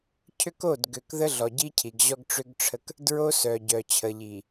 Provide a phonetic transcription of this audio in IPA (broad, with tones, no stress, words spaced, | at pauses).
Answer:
cʰʏ˦ko˦˨d ɡø˨kðə˦ɮɔ˨ ɟi˦cʰi˨ɡ ʑɔ˦ɡʈ͡ʂʏ˦ɡʈ͡ʂʰə˦k | dɹo˦sœ˨ ɟœ˨ t͡ɕʰə˨ʎi˨